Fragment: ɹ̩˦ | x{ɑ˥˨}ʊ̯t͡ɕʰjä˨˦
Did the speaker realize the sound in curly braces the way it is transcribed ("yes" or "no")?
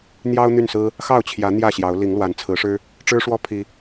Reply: yes